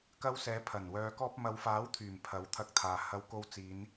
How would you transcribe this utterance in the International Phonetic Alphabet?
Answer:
kɐ˧wsɛː˨˧pʰɐ˨˩nwœː˨˧ kɔː˧p̚mɐ˨˧wfaː˨˥wt̪ʰyː˨˩m pʰɐ˨˥wt̪ʰɐ˧k̚t̪ʰaː˨ hɐ˧wko˧w t͡siː˨˧n

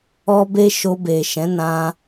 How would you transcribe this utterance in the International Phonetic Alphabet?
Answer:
ɔ˦be˦ ʃo˧be˨ʃɛ̃˨˦nã˧

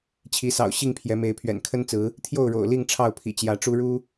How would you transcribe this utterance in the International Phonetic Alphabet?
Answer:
t͡ɕʰi˨˦sɑ̰˨˩ʊ̯ɕi˥˨ŋ pʰjɛ˨˦me˨˦ɪ̯pʰɥɛ̰˨˩n kʰə˦nt͡sɹ̩˨˦ | t̪ʰjo˥˨ʊ̯ɻo̰˨˩ʊ̯ li˥˨ŋ ʈ͡ʂʰɑ˥˨ʊ̯pʰḭ˨˩t͡ɕjä˨˦ʈ͡ʂu˦ ɻu˦

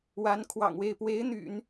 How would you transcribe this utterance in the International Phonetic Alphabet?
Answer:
wa˧˥nkʰwɑ̰˨˩ŋwe˥˩ɪ̯ pwe˧˥ɪ̯n̪y̰˨˩˦n

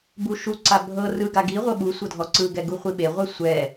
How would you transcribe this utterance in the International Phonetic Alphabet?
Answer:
buʃuǀa bʱɤ rɯ ɡaɡiʁʷɤ ɓu sʷɤdʱɔǀɯɡɛ ɡuχʷiɓeʁʷɛ sʷɛ

